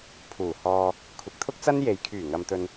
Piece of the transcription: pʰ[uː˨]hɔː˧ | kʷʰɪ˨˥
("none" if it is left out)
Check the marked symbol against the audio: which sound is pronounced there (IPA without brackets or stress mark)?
uː˨˩